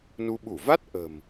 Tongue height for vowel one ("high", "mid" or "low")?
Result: high